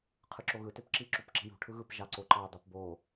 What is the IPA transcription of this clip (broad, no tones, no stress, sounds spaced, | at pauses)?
qʰ ɯ ǁ o ɣ ɯ t ø p ǁ i ǁ u p ǁ i̤ j ṳ ʈʰ ɯ ɣ ɯ p ʒ ɑ ǀ o ǃ ɑ dˤ ɯ p b o